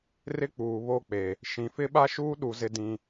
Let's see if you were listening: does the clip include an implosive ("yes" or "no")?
yes